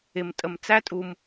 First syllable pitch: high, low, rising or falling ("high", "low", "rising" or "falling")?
low